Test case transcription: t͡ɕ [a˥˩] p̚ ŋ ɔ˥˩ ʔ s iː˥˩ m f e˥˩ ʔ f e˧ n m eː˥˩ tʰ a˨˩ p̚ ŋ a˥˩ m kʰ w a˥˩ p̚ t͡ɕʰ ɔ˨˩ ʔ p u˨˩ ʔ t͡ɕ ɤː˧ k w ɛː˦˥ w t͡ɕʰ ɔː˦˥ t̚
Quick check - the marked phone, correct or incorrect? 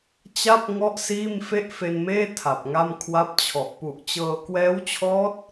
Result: correct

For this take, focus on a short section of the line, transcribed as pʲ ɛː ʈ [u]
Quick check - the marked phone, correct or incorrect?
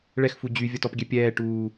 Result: incorrect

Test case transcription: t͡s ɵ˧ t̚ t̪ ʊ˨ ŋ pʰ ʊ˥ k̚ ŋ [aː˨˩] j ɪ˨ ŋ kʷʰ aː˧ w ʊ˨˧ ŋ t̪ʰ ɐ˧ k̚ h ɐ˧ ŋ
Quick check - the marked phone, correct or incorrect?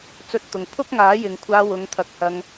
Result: incorrect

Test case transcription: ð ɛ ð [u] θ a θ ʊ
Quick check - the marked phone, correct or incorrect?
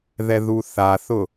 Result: correct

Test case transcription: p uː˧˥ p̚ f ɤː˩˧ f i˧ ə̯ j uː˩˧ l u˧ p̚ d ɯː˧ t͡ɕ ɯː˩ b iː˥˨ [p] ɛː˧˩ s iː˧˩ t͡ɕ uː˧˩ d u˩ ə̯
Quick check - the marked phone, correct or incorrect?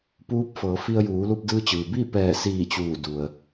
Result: correct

